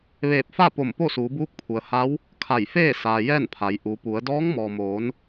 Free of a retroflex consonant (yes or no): yes